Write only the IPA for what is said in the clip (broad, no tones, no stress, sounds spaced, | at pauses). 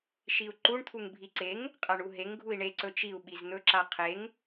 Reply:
ʃ i u̯ ǃ u ɳ t̪ʰ u ŋ bʱ i ǀ e ŋ | qʼ a ɳ u ɦ e ŋ ɡʱ u i̯ ɳ e ǀ ɵ t͡ʃ i u̯ ɓ i z n̪ ɵ ǁ a qʰ e ŋ